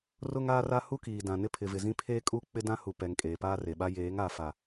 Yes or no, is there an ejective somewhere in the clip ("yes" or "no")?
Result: yes